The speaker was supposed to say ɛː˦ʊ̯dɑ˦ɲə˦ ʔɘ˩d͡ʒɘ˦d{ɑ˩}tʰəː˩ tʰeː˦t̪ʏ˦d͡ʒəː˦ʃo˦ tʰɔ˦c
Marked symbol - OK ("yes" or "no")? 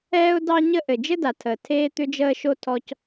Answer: no